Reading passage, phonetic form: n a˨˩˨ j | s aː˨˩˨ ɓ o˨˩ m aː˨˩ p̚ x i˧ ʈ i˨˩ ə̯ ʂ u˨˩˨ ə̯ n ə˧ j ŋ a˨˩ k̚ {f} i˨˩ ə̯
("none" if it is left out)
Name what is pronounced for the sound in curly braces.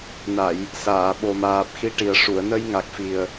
f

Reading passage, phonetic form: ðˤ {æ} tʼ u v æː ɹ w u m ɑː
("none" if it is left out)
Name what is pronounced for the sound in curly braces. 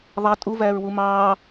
æ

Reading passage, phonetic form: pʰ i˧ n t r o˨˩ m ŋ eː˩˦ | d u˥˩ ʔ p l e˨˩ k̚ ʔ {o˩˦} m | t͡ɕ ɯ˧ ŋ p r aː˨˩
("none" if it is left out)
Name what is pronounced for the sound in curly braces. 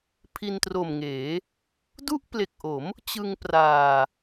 o˩˦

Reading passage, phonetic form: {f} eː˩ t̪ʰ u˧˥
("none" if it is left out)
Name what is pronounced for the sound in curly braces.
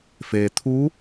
f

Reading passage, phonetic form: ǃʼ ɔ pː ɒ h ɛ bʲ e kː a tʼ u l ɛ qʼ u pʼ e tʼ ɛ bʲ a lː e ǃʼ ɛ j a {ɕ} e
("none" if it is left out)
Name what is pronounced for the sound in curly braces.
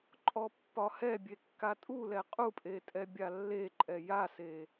s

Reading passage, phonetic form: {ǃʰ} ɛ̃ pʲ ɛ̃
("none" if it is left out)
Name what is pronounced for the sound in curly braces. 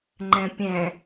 ŋ͡ǃ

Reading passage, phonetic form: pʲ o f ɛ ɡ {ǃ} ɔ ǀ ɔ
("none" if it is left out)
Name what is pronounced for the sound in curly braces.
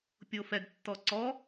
tː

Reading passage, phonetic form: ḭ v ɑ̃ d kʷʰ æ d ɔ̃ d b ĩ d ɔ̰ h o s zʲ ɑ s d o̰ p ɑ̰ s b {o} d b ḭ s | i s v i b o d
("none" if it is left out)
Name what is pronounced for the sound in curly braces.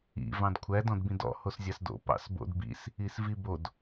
o̰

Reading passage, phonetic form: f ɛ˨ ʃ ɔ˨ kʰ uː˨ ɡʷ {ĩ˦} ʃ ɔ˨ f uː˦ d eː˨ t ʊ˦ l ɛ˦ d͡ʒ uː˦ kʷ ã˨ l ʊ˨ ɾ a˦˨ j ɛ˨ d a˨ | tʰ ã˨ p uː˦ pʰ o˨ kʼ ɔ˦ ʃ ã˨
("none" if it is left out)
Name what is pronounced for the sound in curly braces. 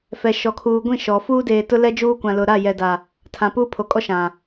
ĩ˦˨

